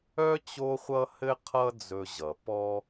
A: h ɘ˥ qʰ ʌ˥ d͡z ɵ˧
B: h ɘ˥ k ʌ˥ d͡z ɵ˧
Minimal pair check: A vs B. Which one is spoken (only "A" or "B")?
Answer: A